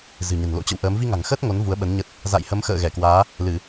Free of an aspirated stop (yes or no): yes